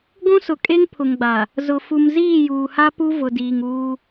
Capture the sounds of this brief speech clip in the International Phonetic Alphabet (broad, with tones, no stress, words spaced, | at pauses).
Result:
ɡʷũ˦sʊ˨ kʼe˦ŋpʰʊ˨ŋɡ͡ba˨ | zʊ˨ fu˨mziː˦˨juː˨ha˦ pu˦vʊ˨diː˨ŋuː˦